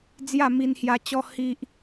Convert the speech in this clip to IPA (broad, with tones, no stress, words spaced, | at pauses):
d͡zja˥˧mi˧nhja˧t͡ɕɔ˦ hi˦ʔ